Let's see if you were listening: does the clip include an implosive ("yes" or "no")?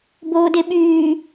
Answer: yes